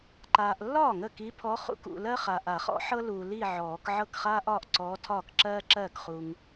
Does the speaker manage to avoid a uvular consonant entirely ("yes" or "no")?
no